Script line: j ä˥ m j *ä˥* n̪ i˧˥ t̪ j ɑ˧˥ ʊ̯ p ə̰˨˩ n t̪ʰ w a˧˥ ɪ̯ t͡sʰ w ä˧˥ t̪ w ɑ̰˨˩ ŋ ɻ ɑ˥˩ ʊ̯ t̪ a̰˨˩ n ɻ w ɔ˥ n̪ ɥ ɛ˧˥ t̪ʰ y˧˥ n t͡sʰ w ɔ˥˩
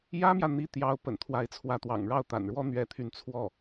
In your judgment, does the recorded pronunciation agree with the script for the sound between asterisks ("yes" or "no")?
no